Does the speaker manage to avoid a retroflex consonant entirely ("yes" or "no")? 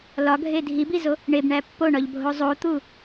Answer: no